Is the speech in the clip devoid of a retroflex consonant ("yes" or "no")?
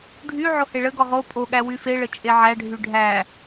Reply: no